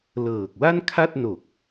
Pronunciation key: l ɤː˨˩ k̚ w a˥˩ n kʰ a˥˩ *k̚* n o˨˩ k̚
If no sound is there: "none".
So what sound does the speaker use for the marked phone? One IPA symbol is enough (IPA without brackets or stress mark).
t̚